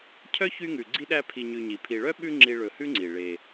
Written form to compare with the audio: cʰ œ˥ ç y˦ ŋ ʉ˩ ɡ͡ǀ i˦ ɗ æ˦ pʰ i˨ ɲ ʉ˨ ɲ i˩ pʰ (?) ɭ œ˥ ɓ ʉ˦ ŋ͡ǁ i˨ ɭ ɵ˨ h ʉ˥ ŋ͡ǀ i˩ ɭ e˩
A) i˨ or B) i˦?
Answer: A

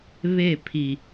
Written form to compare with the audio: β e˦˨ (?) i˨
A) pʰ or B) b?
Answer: A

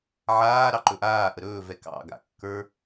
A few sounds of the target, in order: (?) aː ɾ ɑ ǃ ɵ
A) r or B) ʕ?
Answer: B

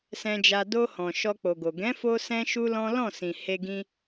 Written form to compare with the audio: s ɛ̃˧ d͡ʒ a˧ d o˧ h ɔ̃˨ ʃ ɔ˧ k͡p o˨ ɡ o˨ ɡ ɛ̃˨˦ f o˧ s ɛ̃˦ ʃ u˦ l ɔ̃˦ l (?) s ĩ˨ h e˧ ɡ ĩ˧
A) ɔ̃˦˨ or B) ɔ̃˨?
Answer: A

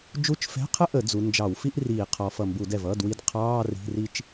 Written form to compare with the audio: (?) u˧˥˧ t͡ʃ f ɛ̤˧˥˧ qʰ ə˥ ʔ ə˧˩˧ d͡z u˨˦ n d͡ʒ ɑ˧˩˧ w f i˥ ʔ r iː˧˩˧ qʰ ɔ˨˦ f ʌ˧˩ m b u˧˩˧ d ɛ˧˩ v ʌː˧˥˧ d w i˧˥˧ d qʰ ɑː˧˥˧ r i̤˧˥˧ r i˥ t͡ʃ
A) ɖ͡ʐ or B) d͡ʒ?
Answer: B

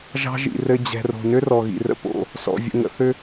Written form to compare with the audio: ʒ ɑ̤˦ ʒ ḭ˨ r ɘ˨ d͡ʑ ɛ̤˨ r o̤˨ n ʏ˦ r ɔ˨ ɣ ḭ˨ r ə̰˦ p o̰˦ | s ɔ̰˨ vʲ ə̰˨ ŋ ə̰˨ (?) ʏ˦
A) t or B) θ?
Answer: B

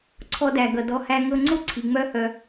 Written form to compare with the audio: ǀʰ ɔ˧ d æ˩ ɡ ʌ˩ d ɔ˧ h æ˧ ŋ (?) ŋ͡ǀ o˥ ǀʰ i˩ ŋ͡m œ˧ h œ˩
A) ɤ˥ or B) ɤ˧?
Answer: B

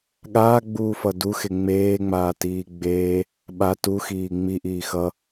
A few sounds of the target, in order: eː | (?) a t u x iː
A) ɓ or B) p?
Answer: A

